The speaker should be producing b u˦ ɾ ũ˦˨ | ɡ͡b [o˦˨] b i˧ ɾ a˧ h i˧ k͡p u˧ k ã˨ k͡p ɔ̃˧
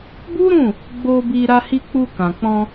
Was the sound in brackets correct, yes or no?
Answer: no